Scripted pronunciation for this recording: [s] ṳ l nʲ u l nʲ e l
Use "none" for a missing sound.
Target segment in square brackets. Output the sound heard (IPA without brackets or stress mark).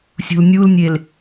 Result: sʲ